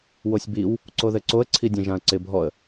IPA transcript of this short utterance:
w o sʲ b i w | ǀ o ð ɘ ǀ o ə̯ ǀʰ i dʲ ẽ ʒ ã ə̯ ǀ ɪ bʱ ɔ ə̯

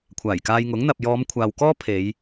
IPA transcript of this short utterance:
kʷʰ aː˨˩ j k aː˧ j ŋ ʊ˨˥ ŋ n̪ ɐ˨ p̚ j ɔː˨˧ m kʷʰ aː˨ w k ɔː˥ pʰ e˨˧ j

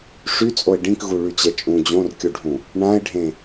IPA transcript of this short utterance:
ʂ y t͡sʼ o ɪ̯ ɖ ĩ k ɣ u ɭ y t͡ɕ ɛ t͡ʃʼ ũ d͡ʑ õ r kʲ u ɖʱ ũ | ɳ ã ɪ̯ ɖʱ ẽ

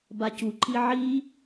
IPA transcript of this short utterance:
b a c u ǃ i ʕ i

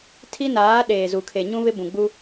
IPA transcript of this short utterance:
tʰ i˦ n aː˨˦ ɗ eː˨ z u˨ kʰ e˨ ɲ ũ˦ β ɪ˦ b ũ˨ ɡ͡b u˦

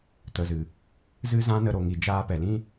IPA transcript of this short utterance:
t ə˨ z ɨ˨ | z ɨ˦ z ã˦ n ə˧ ɾ o˨ ŋ i˨ d͡ʒ aː˧ p ɛ˨ l ĩ˦

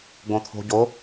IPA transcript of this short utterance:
ɡ õ t̪ʰ o̤ ɟ o

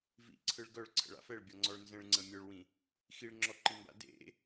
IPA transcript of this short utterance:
v ḭ ǀʰ ɯ ɭ ɡ œ ɭ ǀʰ ə̰ ɭ a̰ f ɛ ɭ bʲ ɔ ŋ͡ǀ ɔ ɭ n z ə̃ ɭ ŋ͡ǀ ə̃ mʲ œ ɭ w ĩ | x i ɭ ŋ͡ǁ ɔ ǃ i m b a̰ d ḛ

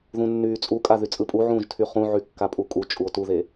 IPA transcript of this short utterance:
ð ũ nː yː t͡sʼ u kʼ a ð y t͡sʼ ɯ pʼ u ʕ ũː ʒ tʰ y χ ũ ʕ y kː a pʼ u kʼ u t͡ʃʼ u o̯ t u ð e

